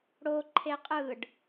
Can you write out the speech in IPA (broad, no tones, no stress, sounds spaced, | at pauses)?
ɽ o ǃʰ e qʼ ɯ ɖ